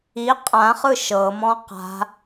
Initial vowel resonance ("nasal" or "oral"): oral